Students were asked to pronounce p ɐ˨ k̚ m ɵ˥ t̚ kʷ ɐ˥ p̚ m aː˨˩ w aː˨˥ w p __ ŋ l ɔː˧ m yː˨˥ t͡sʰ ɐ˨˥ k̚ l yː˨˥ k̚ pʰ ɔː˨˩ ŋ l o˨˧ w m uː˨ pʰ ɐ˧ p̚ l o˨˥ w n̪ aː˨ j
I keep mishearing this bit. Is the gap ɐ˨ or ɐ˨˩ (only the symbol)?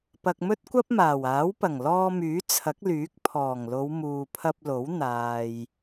ɐ˨˩